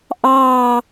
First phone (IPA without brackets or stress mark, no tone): ʔ